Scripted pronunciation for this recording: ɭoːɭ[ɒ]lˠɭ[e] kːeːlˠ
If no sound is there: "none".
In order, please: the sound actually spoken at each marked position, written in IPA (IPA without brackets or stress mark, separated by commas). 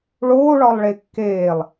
ɒ, e